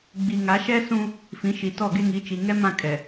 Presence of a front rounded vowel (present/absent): absent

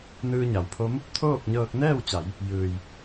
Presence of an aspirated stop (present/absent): present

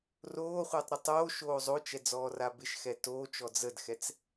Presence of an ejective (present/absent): absent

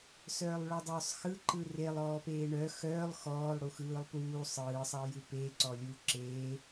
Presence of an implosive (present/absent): absent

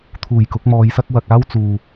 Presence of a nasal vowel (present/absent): absent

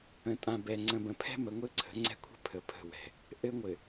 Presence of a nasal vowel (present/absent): present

